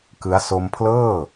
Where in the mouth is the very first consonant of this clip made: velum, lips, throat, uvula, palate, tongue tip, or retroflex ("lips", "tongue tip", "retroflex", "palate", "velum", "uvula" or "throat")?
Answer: velum